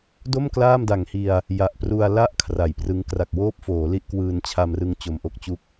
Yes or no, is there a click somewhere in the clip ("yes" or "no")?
no